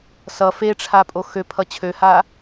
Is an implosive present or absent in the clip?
absent